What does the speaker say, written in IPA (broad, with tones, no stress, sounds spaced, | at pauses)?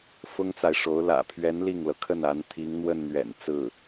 f ʊ˥ ŋ t͡s a˨ ɪ̯ ʂ o˧˥ ʊ̯ l ä̰˨˩ pʰ ɥ ɛ˧˥ n l i˥˩ ŋ l ɤ˩ kʰ ə˥˩ n a˧˥ n t̪ʰ i˧˥ ŋ n̪ w ə˥˩ n n̪ ɥ ɛ̰˨˩ n t͡s ɹ̩˥˩